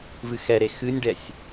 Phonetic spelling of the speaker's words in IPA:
v ɨ x ɛ ɾ e x ɨ nʲ ɖ ɛ sʲ

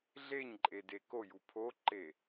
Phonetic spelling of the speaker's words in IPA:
ɮ e ɲ ǃʼ e d e k o j u pʰ o ǃ e

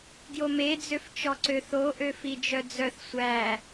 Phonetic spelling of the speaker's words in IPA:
ɡ j o m e d͡z ø f t͡ʃ ɔ ǀ ø θ o ʔ ø f i d͡ʒ œ d͡z œ θ sʷ æ

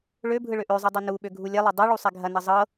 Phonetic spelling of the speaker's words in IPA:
ɭ ø bʱ ɯ ɭ ø ʔ ø zˤ ɯ dˤ ɤ n u ɓ ø ɡʱ u lʲ ɛ lˠ ɐ dˤ ɯ ɭ u sˤ ɛ ɡʱ ɐ n ɐ zˤ ɤ

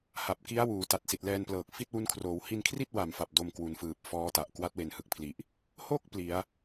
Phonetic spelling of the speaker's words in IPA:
h a˨˩ p̚ k i˦˥ a̯ w uː˩˦ t a˨˩ t̚ s i˨˩ t̚ l ɛː˧ n p l ɤː˨˩ k̚ f i˥˩ t̚ w u˦˥ n kʰ r oː˩˦ w h i˧ n kʰ r i˥˩ t̚ w a˨˩ m f a˨˩ p̚ d o˧ m k w u˩˦ n f ɯː˨˩ p̚ f ɔː˦˥ t a˨˩ ʔ k w a˦˥ t̚ w e˩˦ n h ɯ˨˩ k̚ pʰ l i˨˩ ʔ | h o˥˩ k̚ p l i˩˦ a̯

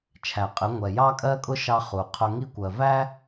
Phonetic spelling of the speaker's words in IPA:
t͡ʃʰ æ˨ qʼ ɪ˨˦ ŋʷ ɛ˨ j ɑ˦ kʼ ɜ˦ kʼ ʊ˦ ʃ ɑ˦ χ u˨ qʰ ʊ˦ ŋ i˦ kʷ ɜ˨ v æ˦

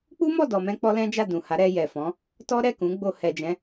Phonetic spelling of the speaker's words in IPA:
k͡p u˦ m ɔ˦˨ d ɔ˨ m ɛ̃˧ k͡p ɔ˦ l ɛ̃˦ d͡ʒ a˦˨ d ũ˨ h a˨˦ ɾ ɛ˧ j ɛ˨ f ɔ̃˨˦ | t ɔ˦ ɾ ɛ˦˨ k ũ˨˦ ɡ͡b o˧ h ɛ˨ d͡ʒ ɛ̃˨˦

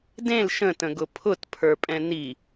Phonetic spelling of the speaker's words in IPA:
d ẽ l ʃ ə̃ t ə̃ ɡ ʊ pʰ ʊ t pʰ ə˞ pʼ ɛ̃ n i

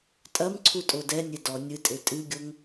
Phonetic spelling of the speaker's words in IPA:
tʼ ɐ m ǀʰ u tʼ o d ɛ nʲ e d ɔ nʲ ɨ tʼ e tʼ ɨ ɡʲ o ŋ

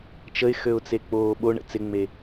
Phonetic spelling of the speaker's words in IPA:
t͡ʃ ə ɪ̯ x ø ʊ̯ t͡s e k͡p oː ɓ o ɳ ə̰ t͡s ɪ ŋ͡m e

